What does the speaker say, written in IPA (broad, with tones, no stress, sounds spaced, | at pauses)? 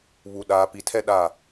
β u˨ ɗ aː˨ p i˨ tʰ ɛ˦ ɗ a˦˨